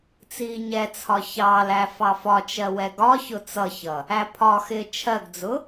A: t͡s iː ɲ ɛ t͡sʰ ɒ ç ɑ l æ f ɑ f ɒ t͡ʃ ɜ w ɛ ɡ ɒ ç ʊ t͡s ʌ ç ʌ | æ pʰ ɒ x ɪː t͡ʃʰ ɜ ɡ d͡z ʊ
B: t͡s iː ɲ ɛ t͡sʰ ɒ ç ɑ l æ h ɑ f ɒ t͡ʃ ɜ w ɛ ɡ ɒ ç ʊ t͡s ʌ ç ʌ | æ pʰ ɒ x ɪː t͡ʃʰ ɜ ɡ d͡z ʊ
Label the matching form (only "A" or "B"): A